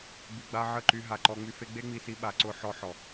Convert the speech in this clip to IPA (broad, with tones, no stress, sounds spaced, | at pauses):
b i˨ ɡ͡b a˧ ʕ ə˦˨ ǃ y˧ ɦ a˨ ǃ ɔ˧ ŋ͡m y˧ f e˦ ɡ͡b e˦ ŋ͡m i˧ s i˧ ɓ a˨ ǀ ʊ˧ ħ ɔ˧ ħ ɔ˨